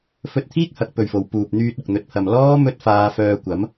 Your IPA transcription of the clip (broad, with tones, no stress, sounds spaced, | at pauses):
f ɵ˧ t̚ t̪ʰ iː˥ k̚ h ɐ˨ k̚ p ɵ˨˩ ɥ f o˨ w p uː˨ p̚ n̪ yː˧ t̚ ʊ˨ k̚ n̪ ɵ˨ t̚ pʰ ɐ˨ m l ɔː˥ m ɵ˥ t̚ f aː˧ f œː˧ kʷ ɐ˨˥ m